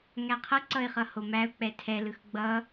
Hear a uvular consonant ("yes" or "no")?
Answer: yes